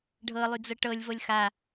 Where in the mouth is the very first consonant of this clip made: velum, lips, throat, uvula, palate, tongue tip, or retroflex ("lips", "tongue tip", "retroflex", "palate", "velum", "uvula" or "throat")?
retroflex